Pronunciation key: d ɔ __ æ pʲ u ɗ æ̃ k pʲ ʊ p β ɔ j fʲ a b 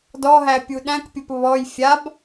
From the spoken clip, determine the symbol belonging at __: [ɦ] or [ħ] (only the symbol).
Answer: ɦ